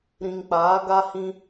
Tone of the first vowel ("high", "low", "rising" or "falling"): low